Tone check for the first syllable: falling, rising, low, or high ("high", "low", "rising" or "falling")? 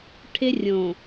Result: high